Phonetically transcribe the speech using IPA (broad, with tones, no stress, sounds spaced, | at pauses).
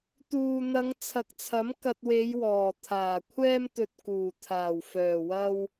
t̪ uː˨ n̪ ɐ˨˧ ŋ t͡sʰ ɐ˨ k̚ t͡sʰ ɐ˨˥ m k ɐ˧ t̚ w e˨˧ j w ɔː˨˩ t̪ʰ aː˨˩ kʷʰ ɛː˥ m t̪ ɵ˧ t̚ k uː˨˩ t̪ʰ aː˨˩ w f œː˨˩ w ɐ˧ w